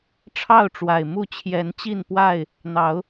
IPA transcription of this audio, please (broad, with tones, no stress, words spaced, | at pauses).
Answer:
ʈ͡ʂʰɑ˥˨ʊ̯ʈ͡ʂwa˨˩ɪ̯mu˥˨ t͡ɕʰjɛ˨˦nt͡ɕi˥˨npwa˥˨ɪ̯ | n̪ɑ˨˦ʊ̯